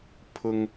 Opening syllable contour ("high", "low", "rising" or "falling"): high